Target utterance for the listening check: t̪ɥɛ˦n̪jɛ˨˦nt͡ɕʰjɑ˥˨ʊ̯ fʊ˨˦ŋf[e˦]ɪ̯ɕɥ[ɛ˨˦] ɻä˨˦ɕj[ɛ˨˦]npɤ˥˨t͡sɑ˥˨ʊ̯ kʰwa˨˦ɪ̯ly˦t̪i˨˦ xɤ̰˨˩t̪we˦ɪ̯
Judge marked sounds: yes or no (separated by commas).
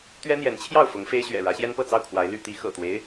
yes, no, no